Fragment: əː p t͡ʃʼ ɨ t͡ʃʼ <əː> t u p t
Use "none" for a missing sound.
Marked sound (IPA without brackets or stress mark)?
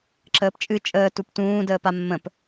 əː